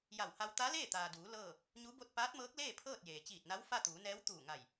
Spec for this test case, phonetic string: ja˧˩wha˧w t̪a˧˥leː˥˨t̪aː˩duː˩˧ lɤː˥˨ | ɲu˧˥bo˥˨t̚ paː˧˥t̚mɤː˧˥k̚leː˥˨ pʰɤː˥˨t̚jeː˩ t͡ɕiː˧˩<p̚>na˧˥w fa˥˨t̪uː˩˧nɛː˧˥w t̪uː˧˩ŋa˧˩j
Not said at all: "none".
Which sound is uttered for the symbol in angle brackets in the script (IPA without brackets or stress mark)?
t̚